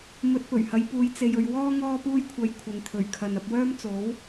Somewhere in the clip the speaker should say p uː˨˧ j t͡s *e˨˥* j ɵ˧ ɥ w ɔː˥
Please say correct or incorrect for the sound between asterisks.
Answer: incorrect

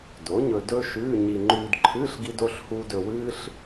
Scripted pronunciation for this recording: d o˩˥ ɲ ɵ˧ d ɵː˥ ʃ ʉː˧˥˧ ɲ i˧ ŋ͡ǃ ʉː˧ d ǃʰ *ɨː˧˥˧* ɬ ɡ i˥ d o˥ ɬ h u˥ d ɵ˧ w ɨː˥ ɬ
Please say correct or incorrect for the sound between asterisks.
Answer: correct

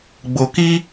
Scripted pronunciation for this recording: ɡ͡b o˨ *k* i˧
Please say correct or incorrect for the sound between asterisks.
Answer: correct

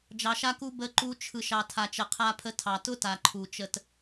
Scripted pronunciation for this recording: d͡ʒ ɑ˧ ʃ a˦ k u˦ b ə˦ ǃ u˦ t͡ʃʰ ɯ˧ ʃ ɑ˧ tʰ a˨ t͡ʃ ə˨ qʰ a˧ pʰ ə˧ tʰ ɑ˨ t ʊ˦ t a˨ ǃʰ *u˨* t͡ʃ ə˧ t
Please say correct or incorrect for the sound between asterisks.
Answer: correct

